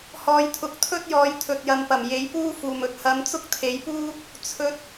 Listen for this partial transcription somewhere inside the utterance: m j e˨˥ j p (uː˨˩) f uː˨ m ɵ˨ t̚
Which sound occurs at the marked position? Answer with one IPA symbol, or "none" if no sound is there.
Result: uː˥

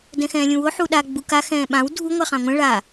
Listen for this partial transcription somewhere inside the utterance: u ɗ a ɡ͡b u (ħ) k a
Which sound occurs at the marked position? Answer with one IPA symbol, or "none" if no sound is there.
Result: none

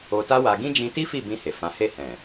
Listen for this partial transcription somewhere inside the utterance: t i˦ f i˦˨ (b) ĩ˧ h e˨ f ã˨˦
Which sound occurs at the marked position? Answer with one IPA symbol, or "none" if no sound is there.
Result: b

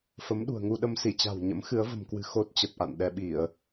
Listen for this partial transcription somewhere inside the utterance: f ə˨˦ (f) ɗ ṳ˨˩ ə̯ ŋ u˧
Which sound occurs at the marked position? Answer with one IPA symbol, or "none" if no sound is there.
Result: m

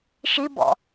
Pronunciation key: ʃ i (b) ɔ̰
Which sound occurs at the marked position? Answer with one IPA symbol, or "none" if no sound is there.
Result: b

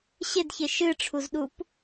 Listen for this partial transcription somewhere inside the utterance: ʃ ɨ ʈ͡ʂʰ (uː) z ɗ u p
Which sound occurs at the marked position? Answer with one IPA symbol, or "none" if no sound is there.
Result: u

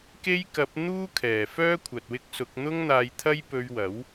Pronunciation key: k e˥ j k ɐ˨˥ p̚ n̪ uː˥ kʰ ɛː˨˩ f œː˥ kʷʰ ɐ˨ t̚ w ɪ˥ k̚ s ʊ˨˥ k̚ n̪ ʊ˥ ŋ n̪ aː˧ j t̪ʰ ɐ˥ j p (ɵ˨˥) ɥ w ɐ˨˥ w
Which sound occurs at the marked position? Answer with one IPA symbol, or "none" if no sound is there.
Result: ɵ˧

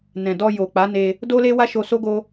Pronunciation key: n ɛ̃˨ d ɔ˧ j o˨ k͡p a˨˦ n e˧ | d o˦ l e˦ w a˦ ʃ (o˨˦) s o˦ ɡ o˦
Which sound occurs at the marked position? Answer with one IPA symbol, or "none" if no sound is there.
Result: o˧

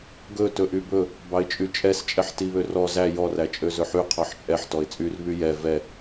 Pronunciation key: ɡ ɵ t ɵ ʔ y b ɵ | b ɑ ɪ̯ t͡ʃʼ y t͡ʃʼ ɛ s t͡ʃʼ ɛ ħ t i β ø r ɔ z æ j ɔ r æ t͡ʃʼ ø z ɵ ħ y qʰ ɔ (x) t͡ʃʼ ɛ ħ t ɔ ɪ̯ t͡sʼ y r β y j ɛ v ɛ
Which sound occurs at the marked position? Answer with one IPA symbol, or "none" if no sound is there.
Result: ħ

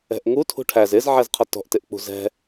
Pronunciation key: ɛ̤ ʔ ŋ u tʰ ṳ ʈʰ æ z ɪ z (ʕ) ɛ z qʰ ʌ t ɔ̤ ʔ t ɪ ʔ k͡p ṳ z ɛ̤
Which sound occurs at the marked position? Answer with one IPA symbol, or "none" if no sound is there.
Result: ʕ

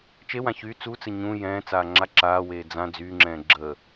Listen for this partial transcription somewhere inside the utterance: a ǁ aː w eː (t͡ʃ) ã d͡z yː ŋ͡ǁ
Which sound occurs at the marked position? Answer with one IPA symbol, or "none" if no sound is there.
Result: d͡z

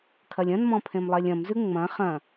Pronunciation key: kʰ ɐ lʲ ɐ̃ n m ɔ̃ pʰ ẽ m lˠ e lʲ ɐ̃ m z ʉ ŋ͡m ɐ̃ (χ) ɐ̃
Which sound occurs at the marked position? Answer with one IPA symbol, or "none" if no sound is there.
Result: χ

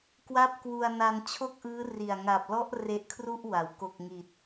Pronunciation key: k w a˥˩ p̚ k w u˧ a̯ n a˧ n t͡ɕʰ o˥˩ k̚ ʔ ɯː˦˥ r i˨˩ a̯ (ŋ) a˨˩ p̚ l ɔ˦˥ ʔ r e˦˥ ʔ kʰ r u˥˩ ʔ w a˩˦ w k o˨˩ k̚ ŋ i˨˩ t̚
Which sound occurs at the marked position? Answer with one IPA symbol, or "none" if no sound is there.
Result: ŋ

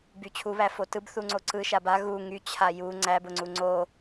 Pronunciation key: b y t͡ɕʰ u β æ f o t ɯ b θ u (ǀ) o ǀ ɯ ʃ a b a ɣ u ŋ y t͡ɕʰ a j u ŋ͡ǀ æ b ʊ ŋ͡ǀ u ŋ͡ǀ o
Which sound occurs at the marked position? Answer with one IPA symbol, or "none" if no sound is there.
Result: ŋ͡ǀ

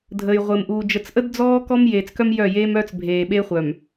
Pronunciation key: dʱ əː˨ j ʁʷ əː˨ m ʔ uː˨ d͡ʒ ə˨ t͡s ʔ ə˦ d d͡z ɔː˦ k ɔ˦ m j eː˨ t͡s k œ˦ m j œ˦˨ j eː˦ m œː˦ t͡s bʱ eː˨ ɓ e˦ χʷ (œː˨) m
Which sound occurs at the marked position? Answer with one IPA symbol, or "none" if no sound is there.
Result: œ˨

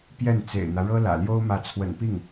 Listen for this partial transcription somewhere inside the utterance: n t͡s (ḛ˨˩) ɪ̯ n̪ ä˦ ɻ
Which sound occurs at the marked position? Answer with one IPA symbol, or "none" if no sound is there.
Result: ḛ˨˩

